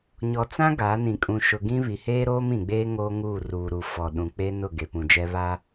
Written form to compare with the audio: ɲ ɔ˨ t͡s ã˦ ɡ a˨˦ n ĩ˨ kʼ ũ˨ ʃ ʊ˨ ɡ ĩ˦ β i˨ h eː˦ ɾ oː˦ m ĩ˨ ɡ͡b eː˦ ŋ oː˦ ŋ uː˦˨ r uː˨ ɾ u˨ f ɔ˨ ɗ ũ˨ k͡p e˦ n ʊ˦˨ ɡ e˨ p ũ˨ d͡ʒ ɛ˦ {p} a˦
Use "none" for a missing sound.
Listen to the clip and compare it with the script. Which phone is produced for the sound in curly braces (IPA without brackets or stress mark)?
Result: β